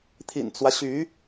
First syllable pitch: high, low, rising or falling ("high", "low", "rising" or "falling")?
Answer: low